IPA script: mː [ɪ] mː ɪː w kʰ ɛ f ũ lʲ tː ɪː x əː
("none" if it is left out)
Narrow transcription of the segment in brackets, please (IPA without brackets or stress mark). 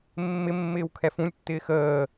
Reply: ɪ